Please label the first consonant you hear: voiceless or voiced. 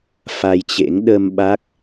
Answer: voiceless